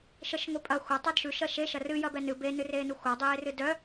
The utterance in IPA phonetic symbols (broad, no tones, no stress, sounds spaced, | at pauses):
ʃ ə ʃ ŋʷ e pʼ ɐ xʷ ɐ tˤ œ d ʃ ʉ ʃ ɐ ʃ e ʃ ɐ r ɨ j ɐ b ɛ n ɨ b e n ɨ r eː n u xʷ a dˤ eː r ɨ d œ